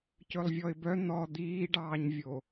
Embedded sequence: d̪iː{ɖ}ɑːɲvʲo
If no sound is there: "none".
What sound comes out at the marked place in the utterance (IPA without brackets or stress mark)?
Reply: ɖ